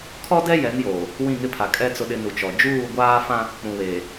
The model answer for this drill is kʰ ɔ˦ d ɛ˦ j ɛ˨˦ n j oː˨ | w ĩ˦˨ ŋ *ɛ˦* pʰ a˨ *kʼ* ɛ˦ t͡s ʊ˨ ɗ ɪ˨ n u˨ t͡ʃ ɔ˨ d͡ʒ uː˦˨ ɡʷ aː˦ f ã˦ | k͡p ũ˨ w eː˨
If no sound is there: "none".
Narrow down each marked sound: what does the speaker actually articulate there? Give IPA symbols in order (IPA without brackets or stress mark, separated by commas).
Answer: ɪ˦, kʼ